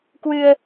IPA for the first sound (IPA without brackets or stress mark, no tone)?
k